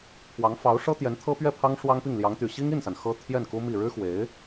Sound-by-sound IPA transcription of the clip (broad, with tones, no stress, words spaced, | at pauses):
pʰwɑ˧˥ŋfɑ˧˥ʊ̯ ʂɤ˥t̪jɛ˧˥nt̪ʰɤ˥ pɥɛ˥˩pʰɑ˥ŋ ʂwɑ˥ŋpi˥˩ŋ ljɑ˧˥ŋt̪y˨˩ ɕi˥ŋi˥˩nsa˩n xɤ˥ t̪ʰjɛ˥˩nku˥ mi˥˩ ɻɻ̩˥xwe˧˥ɪ̯